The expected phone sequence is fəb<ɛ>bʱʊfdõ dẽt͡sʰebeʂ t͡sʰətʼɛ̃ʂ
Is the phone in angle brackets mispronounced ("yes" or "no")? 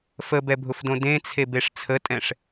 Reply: no